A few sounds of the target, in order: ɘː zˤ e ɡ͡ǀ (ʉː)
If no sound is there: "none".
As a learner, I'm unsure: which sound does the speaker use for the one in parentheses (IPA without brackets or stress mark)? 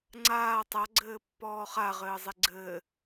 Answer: ɘː